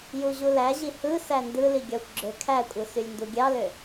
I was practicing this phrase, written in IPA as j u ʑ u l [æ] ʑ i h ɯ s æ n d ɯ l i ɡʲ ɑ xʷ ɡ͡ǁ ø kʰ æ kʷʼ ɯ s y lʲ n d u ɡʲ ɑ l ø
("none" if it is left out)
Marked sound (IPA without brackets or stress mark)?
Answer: æ